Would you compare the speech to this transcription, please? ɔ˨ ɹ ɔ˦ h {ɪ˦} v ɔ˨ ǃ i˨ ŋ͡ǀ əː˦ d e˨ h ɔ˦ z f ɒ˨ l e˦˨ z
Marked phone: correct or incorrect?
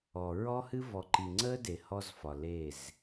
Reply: incorrect